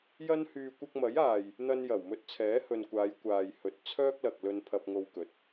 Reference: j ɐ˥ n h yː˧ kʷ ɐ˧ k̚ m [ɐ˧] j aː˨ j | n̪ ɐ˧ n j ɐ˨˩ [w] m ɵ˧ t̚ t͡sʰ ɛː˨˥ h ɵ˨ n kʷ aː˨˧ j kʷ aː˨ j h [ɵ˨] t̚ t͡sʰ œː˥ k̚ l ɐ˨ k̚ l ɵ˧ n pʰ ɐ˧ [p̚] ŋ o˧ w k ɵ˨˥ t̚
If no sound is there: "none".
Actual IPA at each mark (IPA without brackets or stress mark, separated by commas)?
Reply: ɐ˨˥, w, ɵ˨, p̚